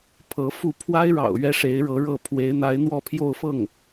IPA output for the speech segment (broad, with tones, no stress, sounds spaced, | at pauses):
pʰ ɤ˧˥ f u˥˩ pʰ w a˥ ɪ̯ ɻ ɑ̰˨˩ ʊ̯ ɥ ɛ˥ ʂ e˧˥ ɪ̯ ɻ ɤ˧˥ ɻ ɤ˥˩ pʰ w e˧˥ ɪ̯ n̪ a˧˥ ɪ̯ n̪ w ɔ˥˧ pʰ j o˥˧ ʊ̯ f ɤ˥˩ ŋ